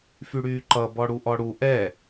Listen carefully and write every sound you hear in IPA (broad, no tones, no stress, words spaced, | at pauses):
fyɽyːǃʌ bɔɽuʔɔɽu ʔɛ